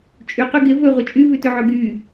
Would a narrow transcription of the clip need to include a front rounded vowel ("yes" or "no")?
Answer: yes